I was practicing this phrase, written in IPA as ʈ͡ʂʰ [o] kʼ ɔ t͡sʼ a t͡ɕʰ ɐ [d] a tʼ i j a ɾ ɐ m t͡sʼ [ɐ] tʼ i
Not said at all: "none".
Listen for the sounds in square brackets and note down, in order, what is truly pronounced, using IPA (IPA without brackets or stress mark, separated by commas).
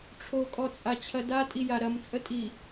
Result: o, d, ə